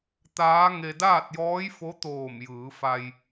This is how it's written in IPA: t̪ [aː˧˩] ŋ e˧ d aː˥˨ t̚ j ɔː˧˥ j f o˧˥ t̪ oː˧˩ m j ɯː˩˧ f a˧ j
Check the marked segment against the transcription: incorrect: aː˧˥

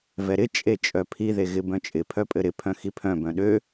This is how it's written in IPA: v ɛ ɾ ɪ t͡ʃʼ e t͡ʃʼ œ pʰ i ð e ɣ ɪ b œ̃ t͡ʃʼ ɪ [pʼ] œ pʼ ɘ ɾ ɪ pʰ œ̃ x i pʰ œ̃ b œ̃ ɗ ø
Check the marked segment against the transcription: incorrect: pʰ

